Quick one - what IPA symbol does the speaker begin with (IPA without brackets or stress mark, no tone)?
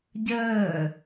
ɟ